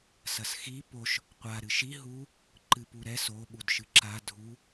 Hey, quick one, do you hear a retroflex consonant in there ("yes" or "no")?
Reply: no